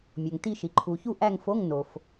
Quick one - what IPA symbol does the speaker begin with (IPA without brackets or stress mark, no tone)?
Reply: mʲ